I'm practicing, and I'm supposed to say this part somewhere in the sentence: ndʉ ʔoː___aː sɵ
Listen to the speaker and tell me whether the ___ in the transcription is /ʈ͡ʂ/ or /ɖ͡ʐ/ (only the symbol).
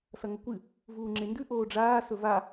ɖ͡ʐ